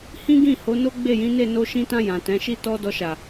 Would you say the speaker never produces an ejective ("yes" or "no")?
yes